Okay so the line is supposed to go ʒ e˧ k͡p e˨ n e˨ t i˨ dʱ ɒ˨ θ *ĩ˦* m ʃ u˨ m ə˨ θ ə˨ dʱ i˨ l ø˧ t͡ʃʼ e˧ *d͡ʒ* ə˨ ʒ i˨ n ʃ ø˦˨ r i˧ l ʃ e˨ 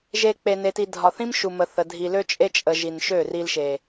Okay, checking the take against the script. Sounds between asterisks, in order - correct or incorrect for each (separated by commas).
correct, incorrect